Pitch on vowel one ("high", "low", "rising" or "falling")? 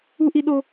high